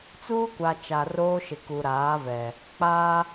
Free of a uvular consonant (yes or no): yes